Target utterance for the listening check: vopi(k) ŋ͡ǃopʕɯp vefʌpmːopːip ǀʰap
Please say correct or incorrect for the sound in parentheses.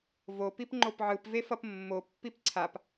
incorrect